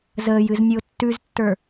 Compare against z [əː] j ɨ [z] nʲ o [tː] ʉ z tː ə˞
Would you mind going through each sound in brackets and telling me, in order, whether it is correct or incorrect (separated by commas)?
correct, correct, correct